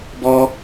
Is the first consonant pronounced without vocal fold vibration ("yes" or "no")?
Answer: no